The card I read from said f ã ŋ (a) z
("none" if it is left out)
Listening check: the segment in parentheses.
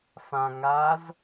a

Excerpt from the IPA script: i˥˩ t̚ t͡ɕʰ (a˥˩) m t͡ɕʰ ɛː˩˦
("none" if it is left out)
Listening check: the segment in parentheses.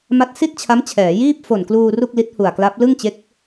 a˦˥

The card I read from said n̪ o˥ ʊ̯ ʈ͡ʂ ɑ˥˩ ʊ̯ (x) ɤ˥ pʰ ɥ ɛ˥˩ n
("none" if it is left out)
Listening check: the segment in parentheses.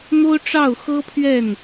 x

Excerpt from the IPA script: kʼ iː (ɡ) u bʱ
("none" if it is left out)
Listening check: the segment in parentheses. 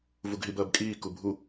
k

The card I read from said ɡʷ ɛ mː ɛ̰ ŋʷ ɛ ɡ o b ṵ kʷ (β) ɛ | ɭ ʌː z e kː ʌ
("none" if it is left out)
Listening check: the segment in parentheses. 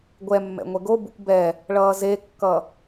b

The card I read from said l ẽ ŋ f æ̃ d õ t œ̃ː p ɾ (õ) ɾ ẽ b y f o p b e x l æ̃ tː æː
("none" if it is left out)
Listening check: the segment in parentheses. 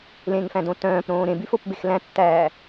õː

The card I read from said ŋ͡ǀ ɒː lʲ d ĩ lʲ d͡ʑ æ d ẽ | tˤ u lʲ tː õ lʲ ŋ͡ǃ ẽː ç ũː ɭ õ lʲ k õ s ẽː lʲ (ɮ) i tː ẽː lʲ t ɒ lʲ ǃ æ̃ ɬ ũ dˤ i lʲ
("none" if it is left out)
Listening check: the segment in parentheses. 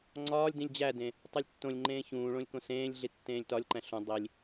ɮ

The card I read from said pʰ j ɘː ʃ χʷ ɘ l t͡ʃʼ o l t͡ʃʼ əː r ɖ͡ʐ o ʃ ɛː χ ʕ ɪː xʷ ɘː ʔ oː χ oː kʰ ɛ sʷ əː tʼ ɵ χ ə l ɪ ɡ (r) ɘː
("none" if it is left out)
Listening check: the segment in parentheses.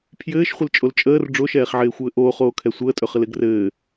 r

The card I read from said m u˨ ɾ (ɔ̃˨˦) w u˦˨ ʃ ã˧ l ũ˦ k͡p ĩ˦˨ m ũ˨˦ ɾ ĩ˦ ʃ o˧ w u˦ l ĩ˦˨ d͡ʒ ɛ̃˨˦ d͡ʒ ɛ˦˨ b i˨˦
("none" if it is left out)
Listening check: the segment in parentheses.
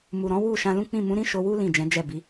ɔ̃˨˦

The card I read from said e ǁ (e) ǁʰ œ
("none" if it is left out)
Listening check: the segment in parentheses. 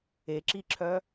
i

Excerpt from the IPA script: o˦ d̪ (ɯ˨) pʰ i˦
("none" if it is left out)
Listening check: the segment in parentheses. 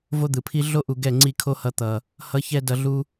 ɯ˨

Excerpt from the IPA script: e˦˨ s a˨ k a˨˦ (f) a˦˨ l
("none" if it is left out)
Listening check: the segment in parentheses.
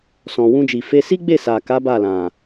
b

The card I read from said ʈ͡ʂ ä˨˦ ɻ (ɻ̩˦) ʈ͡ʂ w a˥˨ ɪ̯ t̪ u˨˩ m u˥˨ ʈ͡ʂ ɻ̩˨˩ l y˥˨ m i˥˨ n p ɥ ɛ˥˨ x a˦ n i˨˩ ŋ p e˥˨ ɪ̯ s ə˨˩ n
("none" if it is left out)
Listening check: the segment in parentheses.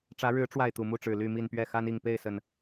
ɻ̩˨˦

